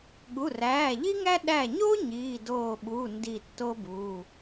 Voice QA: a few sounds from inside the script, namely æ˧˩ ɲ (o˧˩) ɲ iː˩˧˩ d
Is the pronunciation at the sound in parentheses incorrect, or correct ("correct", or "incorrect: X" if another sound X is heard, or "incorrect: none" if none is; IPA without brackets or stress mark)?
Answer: incorrect: o˥